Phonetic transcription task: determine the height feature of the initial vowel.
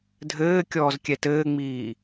mid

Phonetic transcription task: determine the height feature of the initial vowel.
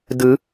high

